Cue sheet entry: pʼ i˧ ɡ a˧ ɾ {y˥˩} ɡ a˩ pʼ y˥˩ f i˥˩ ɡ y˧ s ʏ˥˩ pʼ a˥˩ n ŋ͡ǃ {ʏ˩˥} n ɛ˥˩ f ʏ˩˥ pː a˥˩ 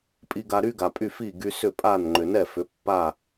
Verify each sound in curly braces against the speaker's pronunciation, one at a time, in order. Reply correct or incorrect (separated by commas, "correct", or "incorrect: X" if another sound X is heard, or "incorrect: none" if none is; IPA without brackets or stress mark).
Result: incorrect: y˥, incorrect: ʏ˩